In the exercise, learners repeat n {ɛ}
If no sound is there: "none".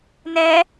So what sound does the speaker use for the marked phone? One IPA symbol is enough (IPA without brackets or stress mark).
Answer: ɛ